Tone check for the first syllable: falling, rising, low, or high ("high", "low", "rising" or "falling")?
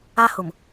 high